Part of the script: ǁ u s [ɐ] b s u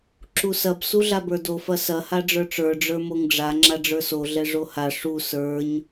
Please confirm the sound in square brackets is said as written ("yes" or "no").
yes